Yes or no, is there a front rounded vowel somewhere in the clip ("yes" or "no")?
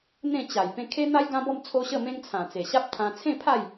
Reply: no